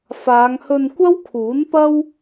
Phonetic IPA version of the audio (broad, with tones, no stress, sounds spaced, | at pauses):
f aː˨˧ ŋ h ɵ˧ n kʷ ɐ˥ w kʰ uː˨˥ n p ɐ˥ w